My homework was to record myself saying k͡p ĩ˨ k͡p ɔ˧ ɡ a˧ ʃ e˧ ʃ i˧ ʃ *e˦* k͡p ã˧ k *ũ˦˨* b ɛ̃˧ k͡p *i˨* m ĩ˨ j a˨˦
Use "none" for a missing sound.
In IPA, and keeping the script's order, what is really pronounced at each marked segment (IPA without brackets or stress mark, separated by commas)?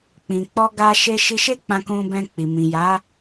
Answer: e˦, ũ˧, i˨